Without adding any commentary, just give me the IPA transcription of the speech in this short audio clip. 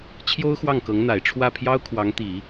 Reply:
t͡ɕʰ j o˥ ʊ̯ x w ɑ˥˩ ŋ k ɤ˧˥ ŋ n̪ a˨˩ ɪ̯ ʈ͡ʂʰ w ä˥˩ pʰ j ɑ˥ ʊ̯ kʰ w ɑ˧˥ ŋ t̪ i˨˩˦

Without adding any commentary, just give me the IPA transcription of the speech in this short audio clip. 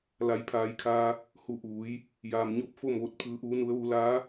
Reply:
l a˩˧ j pʰ aː˩˧ j kʰ aː˧ | h u˧˩ ʔ uː˩˧ j | j aː˩ m ɲ o˧ p̚ f o˥˨ m ʋ o˧˩ t̚ pʰ ɯː˩˧ ʔ uː˩˧ n u˩˧ ə̯ ʋ u˩˧ l aː˧˥

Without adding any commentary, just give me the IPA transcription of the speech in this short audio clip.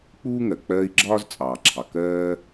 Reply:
k͡p uː˥ ŋ ɜ˩ k͡p ɜː˦ i̯ ɡ͡ǁ ɒː˥ z t͡sʼ ɑː˩ ǁʰ ɑ˩ k ɜː˦

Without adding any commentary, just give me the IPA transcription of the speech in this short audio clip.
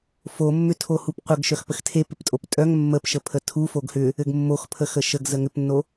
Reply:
f o mː ʏ tʰ o h u p qʷ ə ɡ ʃ œ x p ə x tʰ e p ɪ p tʼ o p tʼ œ ŋ mː ə p ʃ ə pʰ ə tʰ u f o ɡ h ʏ | ɘ ɡ mː o x pʰ ə x ə ʃ ə ɡ z ə ŋ ʏ p nː o

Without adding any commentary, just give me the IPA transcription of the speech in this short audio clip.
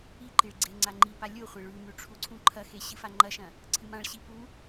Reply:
i ǃ i ɭ ɡ͡ǀ e ŋ͡ǀ a ŋ͡ǃ i p a lʲ o χʷ e ɭ ʉ m ʉ ʈ͡ʂʰ u ǀʰ ũ ǃʰ ɐ x e ɕ ɨ f a ŋ͡ǃ ɐ ʃ ɐ̃ | ǀʰ ɨ m ã ɭ ɕ i p u

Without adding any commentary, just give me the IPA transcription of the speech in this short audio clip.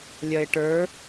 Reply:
lʲ ɐ ɪ̯ ʈ ə˞

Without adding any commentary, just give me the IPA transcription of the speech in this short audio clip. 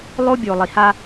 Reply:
lˠ o˦ bʲ o˨ lˠ i˨ h a˦

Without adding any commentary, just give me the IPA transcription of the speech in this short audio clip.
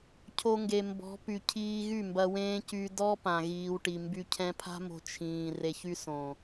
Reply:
cʰ o˧ ŋ ɡ e˨ m b ɔ̤˨˦ p y˨ cʰ iː˧ ɣ y˦˨ m b ɐ˧ w ẽː˦ c y˧ d ɔ˦ p ã˨ ɣ iː˨ w ʈ i˨ m b y˧ cʰ ɛ̃˧ pʰ a̤˦ m o̤˧ t͡ʃʰ ĩː˨ r e˧ ç y˦ s õ˨

